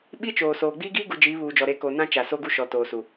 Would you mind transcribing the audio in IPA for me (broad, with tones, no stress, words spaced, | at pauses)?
ɓi˦t͡ʃoː˨soː˨ ɡ͡biː˦ɡiː˦ɡu˨ d͡ʒiː˨˦βuː˨d͡ʒɔ˨ ɾe˨˦ko˨ nã˦t͡ʃa˨ so˦ɡu˦ ʃɔ˨ toː˨su˨